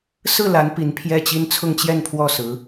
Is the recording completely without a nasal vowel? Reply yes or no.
yes